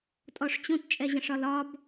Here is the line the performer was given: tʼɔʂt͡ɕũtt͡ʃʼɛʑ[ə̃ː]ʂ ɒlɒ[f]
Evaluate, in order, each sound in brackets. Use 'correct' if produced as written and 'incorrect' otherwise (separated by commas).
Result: incorrect, incorrect